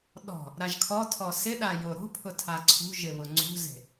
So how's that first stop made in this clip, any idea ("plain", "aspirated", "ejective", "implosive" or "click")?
implosive